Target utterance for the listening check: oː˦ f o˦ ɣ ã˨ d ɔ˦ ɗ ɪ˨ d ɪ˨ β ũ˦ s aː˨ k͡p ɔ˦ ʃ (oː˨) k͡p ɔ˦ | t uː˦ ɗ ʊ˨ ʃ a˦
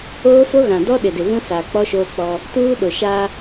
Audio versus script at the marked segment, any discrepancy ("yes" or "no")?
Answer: yes